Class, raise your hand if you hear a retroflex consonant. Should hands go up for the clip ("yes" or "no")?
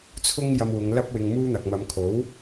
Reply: no